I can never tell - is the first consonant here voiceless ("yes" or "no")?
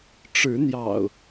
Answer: yes